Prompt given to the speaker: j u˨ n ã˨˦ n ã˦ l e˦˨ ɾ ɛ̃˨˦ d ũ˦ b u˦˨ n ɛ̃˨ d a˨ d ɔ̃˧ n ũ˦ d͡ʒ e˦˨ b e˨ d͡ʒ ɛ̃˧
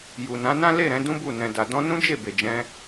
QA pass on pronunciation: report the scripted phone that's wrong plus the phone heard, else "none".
none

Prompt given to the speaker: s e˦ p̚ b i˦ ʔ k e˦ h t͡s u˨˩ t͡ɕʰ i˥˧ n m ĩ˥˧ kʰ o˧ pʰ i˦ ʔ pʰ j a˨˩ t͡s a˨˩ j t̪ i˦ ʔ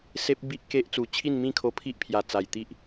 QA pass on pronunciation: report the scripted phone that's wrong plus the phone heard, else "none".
h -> ʔ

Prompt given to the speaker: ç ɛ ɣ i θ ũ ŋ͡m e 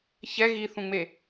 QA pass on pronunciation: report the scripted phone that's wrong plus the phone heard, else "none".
none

